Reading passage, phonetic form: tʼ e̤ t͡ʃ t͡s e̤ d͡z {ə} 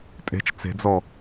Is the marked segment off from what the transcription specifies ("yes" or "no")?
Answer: yes